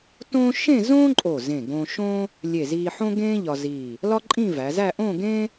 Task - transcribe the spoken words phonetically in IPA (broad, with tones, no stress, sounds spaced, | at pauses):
t õː˥ ʃ ẽ˥˧ z õː˥ ǃʼ o˧˩ z ẽ˧˩ ɡ õ˧ ʃ õː˥ | lʲ e˧˩ z iː˧ ħ õ˥ ɡ ẽː˥ ʎ ɒ˧ z iː˧˩ | l ɒ˥ ǃʼ ĩ˥˧ v æ˩˧ z æ˥˧ ʔ õ˥˧ ɡ ẽː˥